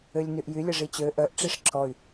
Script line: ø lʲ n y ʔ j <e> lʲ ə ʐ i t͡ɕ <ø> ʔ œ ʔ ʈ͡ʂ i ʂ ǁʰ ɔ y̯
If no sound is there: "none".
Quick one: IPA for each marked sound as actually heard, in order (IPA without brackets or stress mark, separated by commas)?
y, ø